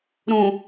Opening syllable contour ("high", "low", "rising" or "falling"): low